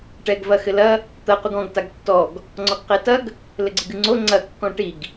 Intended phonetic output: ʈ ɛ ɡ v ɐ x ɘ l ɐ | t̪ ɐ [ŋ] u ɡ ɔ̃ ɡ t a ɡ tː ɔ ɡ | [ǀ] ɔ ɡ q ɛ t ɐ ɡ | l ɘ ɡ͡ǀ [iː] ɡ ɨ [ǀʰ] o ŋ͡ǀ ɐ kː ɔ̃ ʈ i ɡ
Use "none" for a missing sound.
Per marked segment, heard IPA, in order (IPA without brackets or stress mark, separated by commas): q, ŋ͡ǀ, i, ŋ͡ǀ